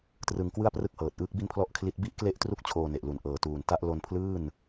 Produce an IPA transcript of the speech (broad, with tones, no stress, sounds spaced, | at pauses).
t r ɯ˧ ŋ k w ɯ˥˩ a̯ p r ɯ˥˩ k̚ h ɤː˨˩ t̚ ʔ ɯː˦˥ k̚ b i˥˩ n pʰ l ɔ˥˩ ʔ kʰ l i˦˥ t̚ b i˦˥ ʔ k l e˦˥ ʔ t r u˦˥ k̚ t͡ɕʰ oː˧ n e˨˩ ʔ l u˨˩ n ʔ ɤː˨˩ t uː˨˩ n t a˦˥ ʔ l o˧ n pʰ l ɯː˥˩ n